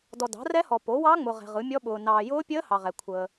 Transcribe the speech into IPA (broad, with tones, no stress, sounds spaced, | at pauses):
d ɔ˨ d ɑ̤˩˥ r ɛ˦˥ h ɔ˨ p o˩˥ w ɑ˦˥ ŋ͡m ʊ˨ ʁ ɛ̤˨ ʁ ɯ˩˥ mʲ ɔ˦˥ ɓ ʊː˨ n ɑː˨ j ʊː˦˥ pʲ əː˦˥ h ɑ˨ ʁ ɛ˨ kʷʰ əː˨